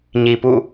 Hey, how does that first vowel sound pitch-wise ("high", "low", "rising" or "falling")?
low